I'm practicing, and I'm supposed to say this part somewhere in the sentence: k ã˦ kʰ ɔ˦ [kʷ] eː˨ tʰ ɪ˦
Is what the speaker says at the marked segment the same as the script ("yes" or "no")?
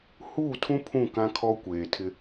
yes